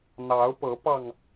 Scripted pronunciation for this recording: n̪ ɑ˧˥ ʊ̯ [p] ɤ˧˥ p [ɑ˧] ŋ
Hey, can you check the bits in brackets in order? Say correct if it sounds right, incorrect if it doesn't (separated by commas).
correct, correct